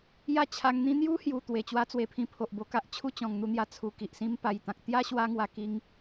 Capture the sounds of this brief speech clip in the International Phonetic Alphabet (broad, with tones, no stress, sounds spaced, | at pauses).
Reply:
j a˥˧ t͡ɕʰ a˧ ŋ n̪ ĩ˦ n̪ j u˦ h j u˨˩ t̪ w e˨˩ t͡ɕ w a˦ t͡s w e˧ pʰ ĩ˧ pʰ o˨ ʔ b o˧ k a˦ ʔ t͡ɕʰ u˥˧ t͡ɕ ɔ̃˨˩ ŋ n̪ u˧ n̪ j a˧ t͡sʰ u˨˩ k i˨ ʔ s ĩ˧ m p a˨˩ j t̪ ã˨ k̚ t̪ j a˦ ɕ w a˧ ŋ w a˨˩ k i˧ ŋ